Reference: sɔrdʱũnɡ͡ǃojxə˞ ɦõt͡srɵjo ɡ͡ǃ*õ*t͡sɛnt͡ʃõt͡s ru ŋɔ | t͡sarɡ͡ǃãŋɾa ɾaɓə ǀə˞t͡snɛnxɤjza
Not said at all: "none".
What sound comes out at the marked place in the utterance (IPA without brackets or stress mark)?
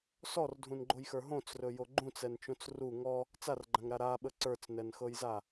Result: ũ